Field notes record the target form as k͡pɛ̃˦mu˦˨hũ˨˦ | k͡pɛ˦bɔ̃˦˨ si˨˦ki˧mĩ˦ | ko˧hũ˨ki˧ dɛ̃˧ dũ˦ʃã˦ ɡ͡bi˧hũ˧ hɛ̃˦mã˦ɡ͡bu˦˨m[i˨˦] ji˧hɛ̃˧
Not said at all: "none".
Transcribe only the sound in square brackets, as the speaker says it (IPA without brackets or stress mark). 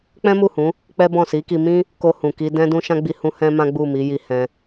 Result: i˨˦